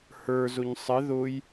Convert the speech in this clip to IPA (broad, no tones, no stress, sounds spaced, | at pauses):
h ə˞ z ʊ ɲ sˤ ɪ ð ʊ j